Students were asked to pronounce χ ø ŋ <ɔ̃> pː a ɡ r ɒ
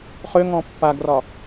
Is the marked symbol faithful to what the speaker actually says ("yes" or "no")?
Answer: yes